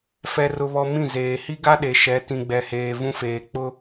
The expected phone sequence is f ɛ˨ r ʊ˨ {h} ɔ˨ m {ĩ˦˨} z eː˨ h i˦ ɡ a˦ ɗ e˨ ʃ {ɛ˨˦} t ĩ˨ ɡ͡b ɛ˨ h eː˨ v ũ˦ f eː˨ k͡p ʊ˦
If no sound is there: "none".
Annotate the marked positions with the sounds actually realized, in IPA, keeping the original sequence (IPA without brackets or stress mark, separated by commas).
β, ĩ˦˨, ɛ˨˦